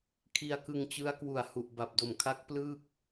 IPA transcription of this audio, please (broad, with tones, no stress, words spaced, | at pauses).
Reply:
kʰi˧a̯kɯ˧ŋt͡ɕɯ˦˥a̯ kwu˨˩a̯hu˨˩ʔ ba˨˩p̚do˨˩mkʰa˦˥k̚ plɯː˥˩k̚